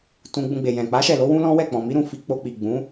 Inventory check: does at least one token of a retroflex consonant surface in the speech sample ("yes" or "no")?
no